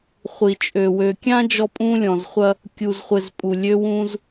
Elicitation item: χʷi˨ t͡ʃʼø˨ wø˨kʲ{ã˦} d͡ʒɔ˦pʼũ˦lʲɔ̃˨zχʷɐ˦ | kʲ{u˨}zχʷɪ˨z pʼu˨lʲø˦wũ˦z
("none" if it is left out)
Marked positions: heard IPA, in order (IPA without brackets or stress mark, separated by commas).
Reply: ã˦, u˨